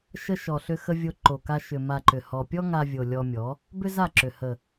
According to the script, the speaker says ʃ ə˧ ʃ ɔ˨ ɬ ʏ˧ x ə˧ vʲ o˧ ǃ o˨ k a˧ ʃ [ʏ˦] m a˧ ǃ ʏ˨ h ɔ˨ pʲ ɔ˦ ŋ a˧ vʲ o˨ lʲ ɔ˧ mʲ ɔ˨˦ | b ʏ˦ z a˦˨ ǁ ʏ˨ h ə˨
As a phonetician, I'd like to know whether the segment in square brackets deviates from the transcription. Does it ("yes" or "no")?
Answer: yes